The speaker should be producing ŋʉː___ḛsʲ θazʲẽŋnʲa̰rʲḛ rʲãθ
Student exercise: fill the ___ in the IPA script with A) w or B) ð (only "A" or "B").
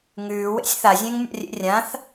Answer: A